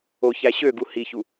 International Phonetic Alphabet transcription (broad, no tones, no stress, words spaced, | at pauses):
o çæɕøɡu hiçu